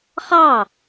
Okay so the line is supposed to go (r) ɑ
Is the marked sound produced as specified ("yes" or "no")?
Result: no